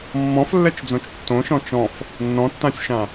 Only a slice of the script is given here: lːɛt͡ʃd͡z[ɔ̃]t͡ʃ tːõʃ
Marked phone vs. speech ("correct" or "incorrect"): incorrect